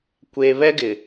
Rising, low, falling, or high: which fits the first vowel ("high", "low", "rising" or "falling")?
low